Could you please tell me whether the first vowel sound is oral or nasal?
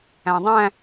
nasal